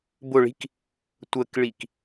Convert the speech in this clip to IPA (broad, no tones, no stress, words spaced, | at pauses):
bʊɭi̤k | tʷəkɭik